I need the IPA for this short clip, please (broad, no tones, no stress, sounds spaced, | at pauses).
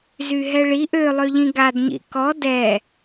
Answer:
z y ɦ ɛ ɭ i ʔ ø lˠ ø ʎ ĩ ɡ a d ɲ ḭ k ɔ d ɛ